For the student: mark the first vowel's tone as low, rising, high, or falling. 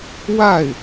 falling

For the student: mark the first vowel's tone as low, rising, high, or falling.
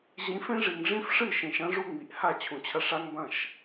rising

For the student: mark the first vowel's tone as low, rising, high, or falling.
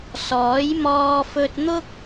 rising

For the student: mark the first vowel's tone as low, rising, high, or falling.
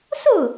falling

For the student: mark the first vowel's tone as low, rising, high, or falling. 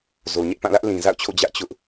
low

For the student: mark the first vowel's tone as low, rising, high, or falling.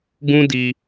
high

